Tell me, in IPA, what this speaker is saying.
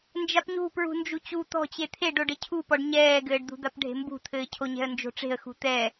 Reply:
n d͡ʒ a p ɲ ṳ p ɹ ṳ n d͡ʒ u t͡ɕ u t̪ ɔ̤ t͡ɕ e t̪ʰ e ɖ o ɖ ɘ cʰ u p ɔ ɖ ɲ ɛː ɡ ɘː ɖ d̪ ṳ d̪ a p ɖʱ e̤ m b ṳ t̪ʰ ɘː cʰ o ɲ ɛ̤ ə̯ n d͡ʒ o̤ ʈ͡ʂ e̤ ə̯ x ṳ t̪ ɛ

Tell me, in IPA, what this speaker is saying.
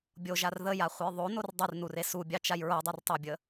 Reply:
bʲ o ʒ a r ð ə j a χʷ ə j ðˤ o n o r dˤ ɨ r n u r e s u bʲ ɑ t͡ʃ a j ɹ o dˤ u r tˤ o bʲ ə

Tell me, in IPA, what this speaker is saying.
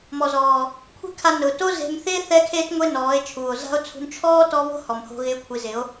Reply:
m ɔ˨ z ɔː˨ | kʷʰ e̤˦ kʰ a˧ n ʊː˨ t o˦ z e̤˧ m θ ɪː˦ θ ɛ˦ kʰ eː˦ t ŋʷ e˦ n ɔː˨˦ e̯ t͡ʃʰ uː˨ o̯ z a̤˦ o̯ t͡sʰ ṳ˧ n t͡ʃʰ ɔː˦ t ɔ˧ β o̤˦ h ɔ˨ m h o̤˧ ɣ ɪː˧ kʷʰ i˨˦ z ɪ˨˦ o̯

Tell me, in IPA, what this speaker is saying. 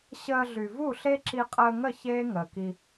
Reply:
ɕ əː˧ ɮ y˨ v u˦˨ ɬ e˦ ǁ i˧ qʼ əː˧ ŋ ə˦˨ ç eː˦ ŋ əː˨ k i˧

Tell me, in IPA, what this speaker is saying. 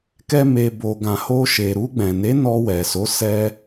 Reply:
k ɛ˦ m e˧ b o˨ ɡ ã˨ h o˧ ʃ e˨ ɾ u˧ ɡ͡b ɛ̃˨ n e˨˦ n ɔ˧ w ɛ˨ s o˨˦ s ɛ˧

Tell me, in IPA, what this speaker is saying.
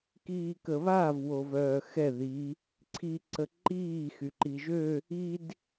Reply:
k iː k ə β a v w o v œː x ɛ ð i | ǀʰ i ǀ ə ǃ iː x y ǃ i ʒ ø | i d

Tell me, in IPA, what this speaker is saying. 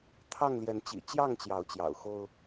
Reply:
t̪ʰ ɑ˥˨ ŋ l j ɛ˨˦ n t͡ɕ ḭ˨˩ t͡ɕ j ɑ˥˨ ŋ t͡ɕ j ɑ˨˦ ʊ̯ t͡ɕ j ɑ̰˨˩ ʊ̯ x o˦ ʊ̯

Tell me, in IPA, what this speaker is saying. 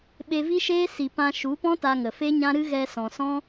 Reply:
ɓ e˧ v i˦ ʃ eː˦ s i˧ p ã˧ ʃ u˨˦ p ɔ̃˦ t a˧ ŋ ə˨ f e˦ ɲ ã˦ ɾ ɨ˦ ɣ ɛ˧ s ɔ̃˨ s ɔ̃˦

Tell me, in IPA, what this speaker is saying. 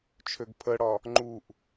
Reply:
t͡ʃʰ ø ɡ pʰ ə ɽ ɒ | ŋ͡ǃ u ʔ

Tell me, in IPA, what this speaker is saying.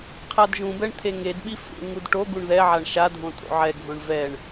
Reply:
qʰ a d ʒ ũ b ɛ ɳ t̪ʰ e ŋ e d ɓ i f ṵ ɳ ŋ u d ʈ o ɡ u ɳ ð ɛ ʕ a ɳ ʃ a dʱ õ tʼ o̰ ʕ ɛ ɡʱ õ ɳ v ɛ ɳ

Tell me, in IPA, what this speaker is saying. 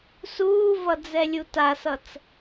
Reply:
s uː v ʌ d͡z ɛ lʲ u t a s ʌ t͡s

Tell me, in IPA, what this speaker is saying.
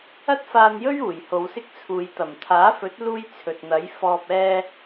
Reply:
ɐ˥ t̚ f aː˧ n j ɵ˥ ɥ uː˨˩ j h o˨˧ w s ɪ˥ k̚ t͡sʰ uː˨˧ j t̪ ɐ˨˩ m t̪ʰ aː˨˥ f ɵ˨˥ t̚ l uː˥ j t͡sʰ ɵ˨ t̚ n̪ ɐ˨˥ j f ɔː˨ p̚ ɛː˧

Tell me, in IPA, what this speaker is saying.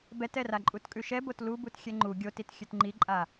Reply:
b ɛ t ɛ r a ǃʼ u t kʼ ʉ ʃ ɛ b o t l u b u t xʲ ɛ ŋ͡ǃ u ɡʲ o t i t xʲ ʉ t ŋ͡ǃ i ǃʼ a

